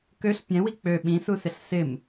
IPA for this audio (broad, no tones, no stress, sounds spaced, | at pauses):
k ø ɬ pʲ ɛ̃ w i k͡p ø ɓ ĩ s u s ɪ ɬ s ɪ m